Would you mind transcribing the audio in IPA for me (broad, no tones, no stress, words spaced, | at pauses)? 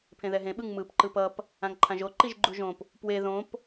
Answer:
pʰẽðɛɦẽ ɓɯŋmɯp ǃɯpʌp | ãŋǃʰãʒo ǃiʒɡ͡ǃuʒõp | pwe ðõp